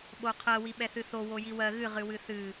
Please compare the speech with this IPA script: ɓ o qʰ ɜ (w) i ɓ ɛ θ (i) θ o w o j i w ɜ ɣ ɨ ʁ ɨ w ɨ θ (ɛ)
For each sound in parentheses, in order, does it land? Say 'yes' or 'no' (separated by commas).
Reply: yes, no, no